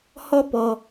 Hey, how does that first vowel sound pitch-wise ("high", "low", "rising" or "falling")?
high